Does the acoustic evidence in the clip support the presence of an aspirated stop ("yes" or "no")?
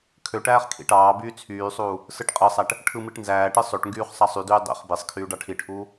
yes